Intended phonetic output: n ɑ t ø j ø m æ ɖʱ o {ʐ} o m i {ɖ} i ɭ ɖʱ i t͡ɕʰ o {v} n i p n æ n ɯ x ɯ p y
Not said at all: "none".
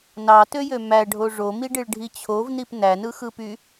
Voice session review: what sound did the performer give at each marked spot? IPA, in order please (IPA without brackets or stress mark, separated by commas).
ʐ, ɖ, v